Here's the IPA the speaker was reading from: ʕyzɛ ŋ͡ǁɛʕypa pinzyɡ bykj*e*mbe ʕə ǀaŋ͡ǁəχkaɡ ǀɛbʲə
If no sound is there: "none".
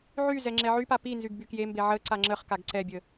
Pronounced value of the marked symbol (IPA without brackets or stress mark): e